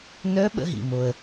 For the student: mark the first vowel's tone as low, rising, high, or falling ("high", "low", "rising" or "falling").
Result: rising